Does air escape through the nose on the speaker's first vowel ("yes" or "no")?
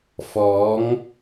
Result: no